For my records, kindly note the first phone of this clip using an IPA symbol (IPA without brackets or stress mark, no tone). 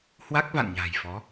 h